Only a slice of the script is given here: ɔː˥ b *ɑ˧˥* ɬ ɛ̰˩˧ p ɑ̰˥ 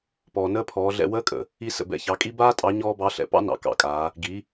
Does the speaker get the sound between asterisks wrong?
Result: no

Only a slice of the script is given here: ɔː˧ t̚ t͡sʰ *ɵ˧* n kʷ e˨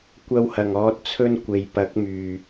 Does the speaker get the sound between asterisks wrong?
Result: yes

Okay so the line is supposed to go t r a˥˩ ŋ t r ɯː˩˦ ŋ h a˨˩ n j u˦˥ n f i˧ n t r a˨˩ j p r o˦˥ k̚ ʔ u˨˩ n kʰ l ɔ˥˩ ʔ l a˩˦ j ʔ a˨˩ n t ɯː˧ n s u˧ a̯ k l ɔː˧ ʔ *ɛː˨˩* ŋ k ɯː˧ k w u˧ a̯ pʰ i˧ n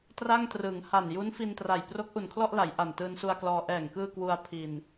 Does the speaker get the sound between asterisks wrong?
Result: no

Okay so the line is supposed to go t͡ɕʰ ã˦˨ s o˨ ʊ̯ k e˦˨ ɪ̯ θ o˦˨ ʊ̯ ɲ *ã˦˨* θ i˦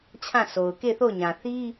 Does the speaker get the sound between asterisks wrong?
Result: yes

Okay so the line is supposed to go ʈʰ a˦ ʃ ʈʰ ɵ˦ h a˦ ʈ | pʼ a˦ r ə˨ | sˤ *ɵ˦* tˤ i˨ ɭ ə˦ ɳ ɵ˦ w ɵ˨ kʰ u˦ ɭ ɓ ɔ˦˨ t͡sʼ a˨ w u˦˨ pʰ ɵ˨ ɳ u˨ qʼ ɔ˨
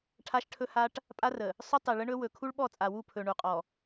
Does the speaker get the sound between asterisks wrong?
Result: no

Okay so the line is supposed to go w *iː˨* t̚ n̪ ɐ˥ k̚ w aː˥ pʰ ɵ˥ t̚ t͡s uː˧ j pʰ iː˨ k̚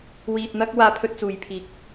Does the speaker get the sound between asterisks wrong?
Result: yes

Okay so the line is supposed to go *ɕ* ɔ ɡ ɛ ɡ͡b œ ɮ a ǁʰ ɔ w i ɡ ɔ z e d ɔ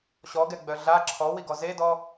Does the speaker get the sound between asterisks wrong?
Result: no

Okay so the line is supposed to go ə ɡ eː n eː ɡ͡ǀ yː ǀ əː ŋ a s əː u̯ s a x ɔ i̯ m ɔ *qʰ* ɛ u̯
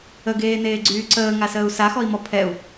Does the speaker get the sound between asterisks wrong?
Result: yes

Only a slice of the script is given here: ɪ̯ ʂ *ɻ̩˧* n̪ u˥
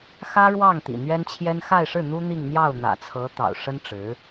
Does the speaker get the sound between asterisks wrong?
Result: yes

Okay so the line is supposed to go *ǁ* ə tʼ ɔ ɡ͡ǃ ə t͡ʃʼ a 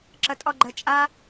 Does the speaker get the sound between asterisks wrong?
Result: no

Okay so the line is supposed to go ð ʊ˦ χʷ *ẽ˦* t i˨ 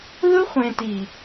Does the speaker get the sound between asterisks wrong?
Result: yes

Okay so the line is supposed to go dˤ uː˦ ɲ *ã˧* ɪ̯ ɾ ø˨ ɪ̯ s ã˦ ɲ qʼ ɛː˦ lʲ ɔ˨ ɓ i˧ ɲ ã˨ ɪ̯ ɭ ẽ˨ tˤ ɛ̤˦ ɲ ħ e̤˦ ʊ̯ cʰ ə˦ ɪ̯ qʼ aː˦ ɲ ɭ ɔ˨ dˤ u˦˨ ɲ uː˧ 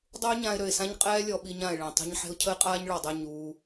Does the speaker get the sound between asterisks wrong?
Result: no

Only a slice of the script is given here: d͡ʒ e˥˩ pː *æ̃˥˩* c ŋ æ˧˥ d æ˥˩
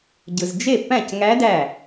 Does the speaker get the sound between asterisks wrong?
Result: no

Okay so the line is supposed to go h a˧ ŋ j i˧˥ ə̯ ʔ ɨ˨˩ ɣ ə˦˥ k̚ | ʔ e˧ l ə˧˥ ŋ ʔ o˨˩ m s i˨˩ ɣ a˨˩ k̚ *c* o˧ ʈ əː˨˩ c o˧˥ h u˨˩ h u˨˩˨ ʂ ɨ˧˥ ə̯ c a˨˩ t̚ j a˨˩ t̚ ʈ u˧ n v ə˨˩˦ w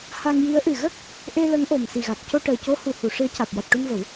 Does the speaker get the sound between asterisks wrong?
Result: no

